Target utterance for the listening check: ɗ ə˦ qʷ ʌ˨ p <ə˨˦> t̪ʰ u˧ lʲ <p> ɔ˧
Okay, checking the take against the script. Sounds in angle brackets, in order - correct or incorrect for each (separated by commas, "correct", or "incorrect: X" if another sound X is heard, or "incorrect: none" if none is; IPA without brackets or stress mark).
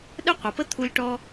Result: incorrect: ə˦, incorrect: ʈ